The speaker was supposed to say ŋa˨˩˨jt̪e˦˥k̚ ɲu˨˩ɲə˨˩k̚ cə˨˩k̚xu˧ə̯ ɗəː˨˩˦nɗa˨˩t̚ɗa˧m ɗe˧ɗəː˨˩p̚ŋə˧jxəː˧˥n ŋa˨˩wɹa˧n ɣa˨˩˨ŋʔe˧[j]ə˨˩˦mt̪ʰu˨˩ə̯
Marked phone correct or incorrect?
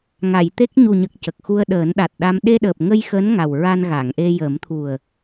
correct